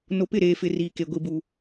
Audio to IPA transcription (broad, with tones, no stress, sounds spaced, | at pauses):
n o˨ p ɪ˦˨ ɾ eː˨ f ɪ˨ r iː˨ k e˨ ɡʷ i˨ b u˨